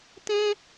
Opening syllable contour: high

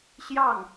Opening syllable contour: falling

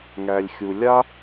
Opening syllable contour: low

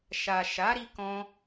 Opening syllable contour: low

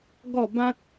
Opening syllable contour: falling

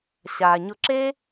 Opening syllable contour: low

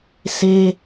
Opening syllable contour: high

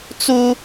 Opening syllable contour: high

